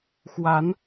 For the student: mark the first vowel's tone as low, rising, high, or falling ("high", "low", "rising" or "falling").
rising